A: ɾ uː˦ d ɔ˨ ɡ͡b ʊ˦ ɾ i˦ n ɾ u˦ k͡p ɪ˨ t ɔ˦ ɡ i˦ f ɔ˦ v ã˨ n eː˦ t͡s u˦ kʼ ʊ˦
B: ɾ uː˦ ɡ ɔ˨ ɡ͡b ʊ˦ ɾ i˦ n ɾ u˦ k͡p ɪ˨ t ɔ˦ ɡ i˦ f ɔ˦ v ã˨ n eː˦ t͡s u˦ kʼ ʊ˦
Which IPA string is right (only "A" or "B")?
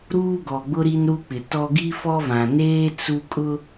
B